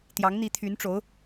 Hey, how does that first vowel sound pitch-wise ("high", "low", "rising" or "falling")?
rising